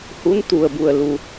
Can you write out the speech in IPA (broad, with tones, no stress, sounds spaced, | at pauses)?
h u˧˥ n t̪ u˩ ə̯ b u˩ ə̯ l u˩